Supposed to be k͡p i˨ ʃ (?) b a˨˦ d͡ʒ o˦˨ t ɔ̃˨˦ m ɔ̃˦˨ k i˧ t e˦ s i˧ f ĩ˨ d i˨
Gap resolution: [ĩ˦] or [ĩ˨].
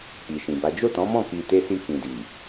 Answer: ĩ˨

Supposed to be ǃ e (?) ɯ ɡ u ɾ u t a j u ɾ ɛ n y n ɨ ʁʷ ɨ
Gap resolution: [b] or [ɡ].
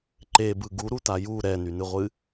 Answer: b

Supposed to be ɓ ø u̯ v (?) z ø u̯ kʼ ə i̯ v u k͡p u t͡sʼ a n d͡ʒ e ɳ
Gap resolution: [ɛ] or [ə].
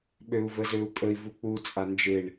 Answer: ə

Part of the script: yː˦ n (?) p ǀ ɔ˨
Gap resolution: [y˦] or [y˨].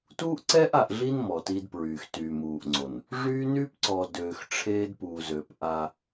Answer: y˦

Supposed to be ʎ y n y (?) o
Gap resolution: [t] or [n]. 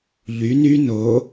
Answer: n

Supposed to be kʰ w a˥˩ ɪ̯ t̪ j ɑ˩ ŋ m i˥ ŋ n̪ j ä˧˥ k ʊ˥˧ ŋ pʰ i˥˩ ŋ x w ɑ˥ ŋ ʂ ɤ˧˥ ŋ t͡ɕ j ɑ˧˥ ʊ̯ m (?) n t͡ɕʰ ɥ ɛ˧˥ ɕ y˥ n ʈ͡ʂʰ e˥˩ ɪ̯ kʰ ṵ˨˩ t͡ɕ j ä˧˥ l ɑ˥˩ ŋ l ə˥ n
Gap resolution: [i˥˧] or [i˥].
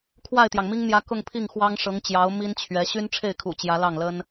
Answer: i˥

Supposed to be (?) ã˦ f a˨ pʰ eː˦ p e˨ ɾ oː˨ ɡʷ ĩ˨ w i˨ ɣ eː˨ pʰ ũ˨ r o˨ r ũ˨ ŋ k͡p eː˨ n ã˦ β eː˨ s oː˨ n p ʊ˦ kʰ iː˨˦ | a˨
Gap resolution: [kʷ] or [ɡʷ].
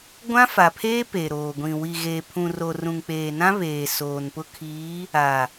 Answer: ɡʷ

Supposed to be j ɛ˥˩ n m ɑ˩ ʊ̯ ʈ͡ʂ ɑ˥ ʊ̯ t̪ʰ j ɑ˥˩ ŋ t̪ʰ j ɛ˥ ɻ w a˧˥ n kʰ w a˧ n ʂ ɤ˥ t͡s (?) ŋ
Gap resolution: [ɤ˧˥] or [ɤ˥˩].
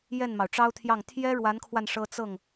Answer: ɤ˥˩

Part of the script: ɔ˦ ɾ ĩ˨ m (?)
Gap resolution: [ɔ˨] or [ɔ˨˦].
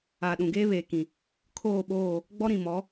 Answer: ɔ˨˦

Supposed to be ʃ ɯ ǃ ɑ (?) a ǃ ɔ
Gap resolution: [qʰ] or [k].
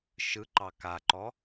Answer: k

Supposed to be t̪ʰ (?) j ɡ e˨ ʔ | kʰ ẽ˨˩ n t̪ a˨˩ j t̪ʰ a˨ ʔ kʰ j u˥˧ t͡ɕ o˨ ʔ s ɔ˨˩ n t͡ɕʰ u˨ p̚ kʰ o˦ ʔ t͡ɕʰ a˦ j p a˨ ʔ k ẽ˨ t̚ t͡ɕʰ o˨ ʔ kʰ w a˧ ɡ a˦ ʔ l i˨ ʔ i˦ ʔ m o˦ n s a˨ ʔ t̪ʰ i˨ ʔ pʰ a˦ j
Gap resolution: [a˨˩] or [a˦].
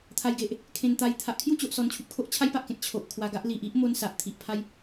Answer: a˨˩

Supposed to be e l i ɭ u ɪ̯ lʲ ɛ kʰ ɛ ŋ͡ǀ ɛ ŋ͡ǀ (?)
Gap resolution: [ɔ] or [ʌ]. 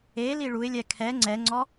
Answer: ɔ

